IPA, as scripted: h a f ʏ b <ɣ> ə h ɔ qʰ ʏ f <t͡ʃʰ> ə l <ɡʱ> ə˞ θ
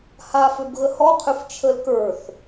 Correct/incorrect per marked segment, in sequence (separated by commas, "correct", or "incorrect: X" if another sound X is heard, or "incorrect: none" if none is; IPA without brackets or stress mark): correct, correct, incorrect: k